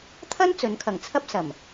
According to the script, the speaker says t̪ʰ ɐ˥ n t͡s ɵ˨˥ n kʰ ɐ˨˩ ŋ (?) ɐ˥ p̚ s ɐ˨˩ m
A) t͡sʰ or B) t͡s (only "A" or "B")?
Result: A